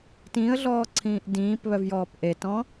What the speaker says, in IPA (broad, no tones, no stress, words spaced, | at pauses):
tĩːə̯ɮɔːǀʰĩːʔ dĩːpβœvjɔːp ʔetɔ̃